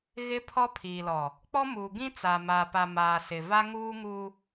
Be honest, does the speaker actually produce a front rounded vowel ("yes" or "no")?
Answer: no